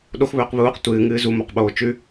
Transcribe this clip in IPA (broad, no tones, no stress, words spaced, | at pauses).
ɗoxβɵːq βuːq tʷɨːŋɨː zumoqɓoː t͡ʃʉ